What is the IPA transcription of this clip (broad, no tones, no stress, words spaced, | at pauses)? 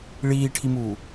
ɭiːʈʰimuː